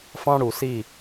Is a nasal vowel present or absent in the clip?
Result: present